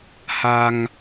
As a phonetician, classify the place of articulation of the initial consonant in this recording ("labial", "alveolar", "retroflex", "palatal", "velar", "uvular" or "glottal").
glottal